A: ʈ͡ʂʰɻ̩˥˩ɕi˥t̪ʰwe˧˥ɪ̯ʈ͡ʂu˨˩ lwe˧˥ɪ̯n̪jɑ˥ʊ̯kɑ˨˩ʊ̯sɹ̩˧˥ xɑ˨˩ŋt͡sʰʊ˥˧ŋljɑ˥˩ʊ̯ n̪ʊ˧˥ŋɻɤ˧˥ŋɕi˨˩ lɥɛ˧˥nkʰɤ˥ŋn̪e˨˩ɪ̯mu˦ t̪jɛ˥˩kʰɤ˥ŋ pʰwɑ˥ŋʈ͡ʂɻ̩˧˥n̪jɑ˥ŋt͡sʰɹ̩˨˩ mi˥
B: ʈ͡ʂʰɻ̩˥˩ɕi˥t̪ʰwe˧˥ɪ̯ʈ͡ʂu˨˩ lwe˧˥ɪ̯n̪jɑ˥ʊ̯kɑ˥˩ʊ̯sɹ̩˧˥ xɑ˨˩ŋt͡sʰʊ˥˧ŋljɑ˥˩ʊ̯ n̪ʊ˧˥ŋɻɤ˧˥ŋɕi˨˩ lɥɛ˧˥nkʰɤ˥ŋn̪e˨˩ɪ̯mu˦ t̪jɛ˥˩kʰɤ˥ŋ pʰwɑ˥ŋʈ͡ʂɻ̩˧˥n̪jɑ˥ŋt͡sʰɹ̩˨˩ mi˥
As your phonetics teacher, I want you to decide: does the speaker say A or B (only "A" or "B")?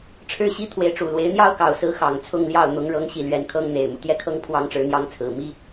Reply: A